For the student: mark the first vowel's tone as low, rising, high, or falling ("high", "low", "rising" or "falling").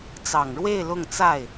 low